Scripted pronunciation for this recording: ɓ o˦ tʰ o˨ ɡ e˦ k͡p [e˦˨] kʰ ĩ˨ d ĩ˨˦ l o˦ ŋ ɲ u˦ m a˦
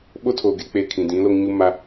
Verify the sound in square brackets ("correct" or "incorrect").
correct